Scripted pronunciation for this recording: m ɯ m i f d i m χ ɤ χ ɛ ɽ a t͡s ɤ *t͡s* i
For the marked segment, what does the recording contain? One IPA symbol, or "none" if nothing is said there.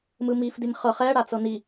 n̪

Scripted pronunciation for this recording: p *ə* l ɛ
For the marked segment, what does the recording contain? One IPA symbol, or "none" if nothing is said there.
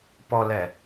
ɔ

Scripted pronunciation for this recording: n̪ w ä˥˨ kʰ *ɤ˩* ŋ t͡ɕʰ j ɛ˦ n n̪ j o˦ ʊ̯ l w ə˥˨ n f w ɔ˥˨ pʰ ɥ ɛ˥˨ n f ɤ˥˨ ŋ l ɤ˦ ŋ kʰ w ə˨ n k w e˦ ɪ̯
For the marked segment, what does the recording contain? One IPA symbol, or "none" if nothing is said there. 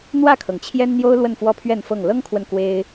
ɤ˩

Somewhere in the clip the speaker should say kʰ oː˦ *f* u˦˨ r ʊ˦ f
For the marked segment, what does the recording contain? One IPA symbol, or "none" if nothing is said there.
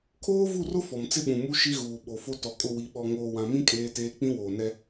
v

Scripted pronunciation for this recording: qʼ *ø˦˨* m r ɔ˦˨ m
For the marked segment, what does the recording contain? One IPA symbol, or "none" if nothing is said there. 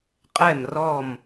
ɛ˦˨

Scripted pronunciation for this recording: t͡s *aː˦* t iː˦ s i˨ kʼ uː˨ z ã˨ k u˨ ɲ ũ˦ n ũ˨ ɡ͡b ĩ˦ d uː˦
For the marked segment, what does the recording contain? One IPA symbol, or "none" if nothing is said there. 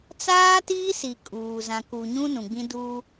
aː˦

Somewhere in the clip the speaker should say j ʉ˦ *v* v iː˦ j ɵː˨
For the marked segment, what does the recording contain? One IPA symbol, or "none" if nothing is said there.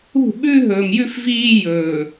f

